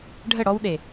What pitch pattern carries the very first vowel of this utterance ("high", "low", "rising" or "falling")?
falling